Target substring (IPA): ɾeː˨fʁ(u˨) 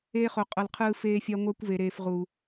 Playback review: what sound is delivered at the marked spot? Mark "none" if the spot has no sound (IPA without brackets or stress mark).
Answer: u˨